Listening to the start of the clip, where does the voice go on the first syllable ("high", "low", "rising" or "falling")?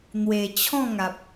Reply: low